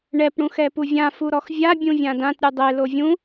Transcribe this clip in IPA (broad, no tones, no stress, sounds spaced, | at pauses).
ɳ ɛ p ɽ ũ x ɛ p u vʲ ã f u ɾ ɔ x vʲ a bʲ ũ vʲ ã d ã t ɾʲ u dˤ e l o vʲ ũ